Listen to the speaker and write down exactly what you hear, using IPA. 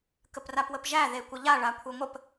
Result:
k ə p r a p w ə p ʒ æ ð e kʷ ə ʎ a ɭ a kʷʰ e ŋʷ ə p

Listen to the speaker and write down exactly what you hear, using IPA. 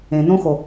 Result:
ẽ n õ x o

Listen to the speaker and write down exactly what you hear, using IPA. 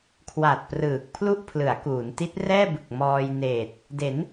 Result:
kʰ w a˨˩ t̚ p r ɯː˨˩ k̚ pʰ l u˥˩ ʔ pʰ l ɯ˩˦ a̯ k uː˩˦ n t i˦˥ t̚ r ɛː˥˩ b ɯ˨˩ k̚ m ɔː˧ j n eː˨˩ t̚ | d e˩˦ n

